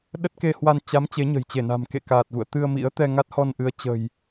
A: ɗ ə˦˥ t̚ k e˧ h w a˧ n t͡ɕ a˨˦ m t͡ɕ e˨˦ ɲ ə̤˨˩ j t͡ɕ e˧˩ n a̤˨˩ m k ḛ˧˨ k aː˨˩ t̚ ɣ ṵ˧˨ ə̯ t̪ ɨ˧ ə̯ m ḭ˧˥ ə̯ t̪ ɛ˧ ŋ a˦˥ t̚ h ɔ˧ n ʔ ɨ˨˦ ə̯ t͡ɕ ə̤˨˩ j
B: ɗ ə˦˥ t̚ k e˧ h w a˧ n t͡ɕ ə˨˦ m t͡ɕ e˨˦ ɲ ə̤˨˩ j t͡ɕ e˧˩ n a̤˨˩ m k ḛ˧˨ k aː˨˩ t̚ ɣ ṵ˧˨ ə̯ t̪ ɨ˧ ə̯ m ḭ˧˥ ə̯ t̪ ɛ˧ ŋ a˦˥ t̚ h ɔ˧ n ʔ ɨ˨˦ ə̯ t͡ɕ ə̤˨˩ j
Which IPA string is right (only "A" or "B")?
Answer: A